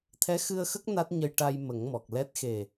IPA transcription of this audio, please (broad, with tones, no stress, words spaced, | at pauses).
t̪ʰɛ˧˥xɨ˧ə̯xə˦˥k̚ na˦˥t̚ɲə˧jʈa˧j mə˨˩˦ŋmɔ˨˩k̚ lɛ˦˥t̚ xe˨˩